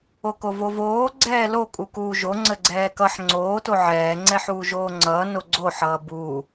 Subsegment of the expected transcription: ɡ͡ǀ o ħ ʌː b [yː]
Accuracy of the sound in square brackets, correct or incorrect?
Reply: incorrect: uː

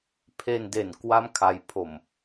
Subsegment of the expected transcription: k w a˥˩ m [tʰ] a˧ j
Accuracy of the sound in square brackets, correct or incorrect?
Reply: incorrect: kʰ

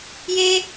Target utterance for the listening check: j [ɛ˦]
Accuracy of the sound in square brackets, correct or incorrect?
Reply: incorrect: e˦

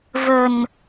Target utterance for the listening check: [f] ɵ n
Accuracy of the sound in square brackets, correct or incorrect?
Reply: incorrect: v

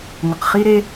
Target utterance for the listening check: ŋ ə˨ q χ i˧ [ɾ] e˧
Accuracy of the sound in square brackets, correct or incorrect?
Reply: correct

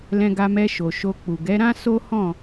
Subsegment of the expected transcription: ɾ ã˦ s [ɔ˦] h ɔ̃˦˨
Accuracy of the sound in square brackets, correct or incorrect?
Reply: incorrect: o˦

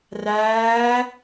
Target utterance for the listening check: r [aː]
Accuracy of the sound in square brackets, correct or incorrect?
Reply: incorrect: æː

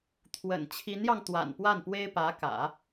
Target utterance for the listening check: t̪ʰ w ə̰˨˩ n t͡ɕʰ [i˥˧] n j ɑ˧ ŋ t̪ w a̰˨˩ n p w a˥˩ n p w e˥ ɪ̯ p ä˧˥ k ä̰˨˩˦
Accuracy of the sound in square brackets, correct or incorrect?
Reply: incorrect: i˧˥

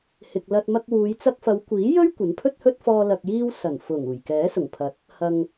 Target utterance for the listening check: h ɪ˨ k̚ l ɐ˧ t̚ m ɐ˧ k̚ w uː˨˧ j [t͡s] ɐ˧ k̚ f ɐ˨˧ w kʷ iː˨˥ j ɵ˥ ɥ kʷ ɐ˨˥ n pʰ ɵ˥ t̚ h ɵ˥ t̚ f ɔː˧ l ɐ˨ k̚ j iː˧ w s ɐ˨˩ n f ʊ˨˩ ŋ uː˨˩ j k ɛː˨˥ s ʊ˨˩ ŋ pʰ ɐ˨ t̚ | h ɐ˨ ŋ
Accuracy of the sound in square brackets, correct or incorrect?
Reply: correct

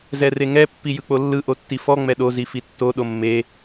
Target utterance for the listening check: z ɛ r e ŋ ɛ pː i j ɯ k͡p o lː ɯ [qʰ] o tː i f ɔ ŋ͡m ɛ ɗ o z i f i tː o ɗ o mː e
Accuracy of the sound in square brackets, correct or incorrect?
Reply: incorrect: ʔ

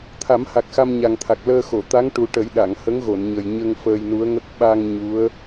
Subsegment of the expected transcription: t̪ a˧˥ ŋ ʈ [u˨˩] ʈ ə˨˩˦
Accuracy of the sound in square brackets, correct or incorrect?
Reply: correct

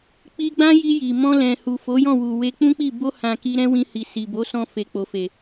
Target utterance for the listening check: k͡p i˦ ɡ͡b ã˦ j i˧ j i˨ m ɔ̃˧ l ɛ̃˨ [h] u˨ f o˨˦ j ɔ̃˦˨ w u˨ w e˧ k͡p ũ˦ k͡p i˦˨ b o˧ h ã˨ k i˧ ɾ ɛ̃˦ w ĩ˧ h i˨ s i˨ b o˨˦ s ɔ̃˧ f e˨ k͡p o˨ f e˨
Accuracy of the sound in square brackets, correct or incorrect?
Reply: correct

